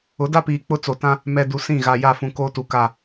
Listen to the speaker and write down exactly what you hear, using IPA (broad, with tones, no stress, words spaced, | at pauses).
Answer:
ʊ˨˦da˦piː˨ k͡pʊ˦t͡so˨tã˦ | mɛ˨ du˨ sĩ˦˨ɣa˨ja˦˨fũ˨ koː˦tu˨ ka˦˨